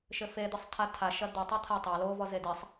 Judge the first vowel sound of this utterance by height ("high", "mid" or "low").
mid